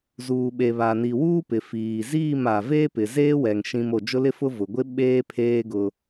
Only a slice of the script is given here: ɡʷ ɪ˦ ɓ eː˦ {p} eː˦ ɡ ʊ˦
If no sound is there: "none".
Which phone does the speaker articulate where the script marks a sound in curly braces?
pʰ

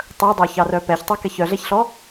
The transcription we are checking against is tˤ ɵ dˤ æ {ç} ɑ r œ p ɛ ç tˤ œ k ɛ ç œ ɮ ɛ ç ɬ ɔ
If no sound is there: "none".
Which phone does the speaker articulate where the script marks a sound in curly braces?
ç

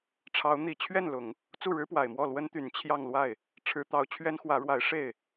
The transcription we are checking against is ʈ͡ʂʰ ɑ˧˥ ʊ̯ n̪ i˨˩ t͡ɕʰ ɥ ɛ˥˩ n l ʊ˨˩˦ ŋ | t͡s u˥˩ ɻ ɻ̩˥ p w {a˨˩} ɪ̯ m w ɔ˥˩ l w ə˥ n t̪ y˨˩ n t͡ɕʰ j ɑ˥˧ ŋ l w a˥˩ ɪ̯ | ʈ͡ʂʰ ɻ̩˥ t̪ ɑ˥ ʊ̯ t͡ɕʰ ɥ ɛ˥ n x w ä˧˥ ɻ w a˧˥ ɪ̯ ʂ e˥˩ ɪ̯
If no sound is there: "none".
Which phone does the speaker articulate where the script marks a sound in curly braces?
a˨˩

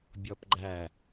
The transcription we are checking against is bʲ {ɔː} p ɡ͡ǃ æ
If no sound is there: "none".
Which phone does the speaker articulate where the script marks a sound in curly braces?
ɔ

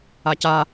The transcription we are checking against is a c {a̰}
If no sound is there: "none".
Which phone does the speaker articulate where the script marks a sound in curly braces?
a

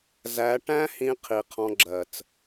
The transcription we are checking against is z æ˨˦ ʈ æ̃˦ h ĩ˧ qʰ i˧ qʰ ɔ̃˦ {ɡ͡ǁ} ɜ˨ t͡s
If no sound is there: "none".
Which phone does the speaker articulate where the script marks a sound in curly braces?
ɡ͡ǁ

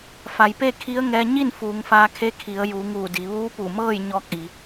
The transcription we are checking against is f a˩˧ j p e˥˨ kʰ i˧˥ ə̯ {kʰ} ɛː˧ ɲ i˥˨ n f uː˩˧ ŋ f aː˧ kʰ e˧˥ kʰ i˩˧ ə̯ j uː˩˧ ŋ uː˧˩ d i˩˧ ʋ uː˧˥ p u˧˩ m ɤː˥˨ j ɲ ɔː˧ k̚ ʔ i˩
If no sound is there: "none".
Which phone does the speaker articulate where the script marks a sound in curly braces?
ŋ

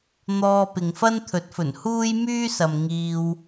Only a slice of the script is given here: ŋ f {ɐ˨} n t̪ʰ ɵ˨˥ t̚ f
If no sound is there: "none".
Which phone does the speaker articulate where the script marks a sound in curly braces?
ɐ˥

